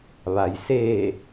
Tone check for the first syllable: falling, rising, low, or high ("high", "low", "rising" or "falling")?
low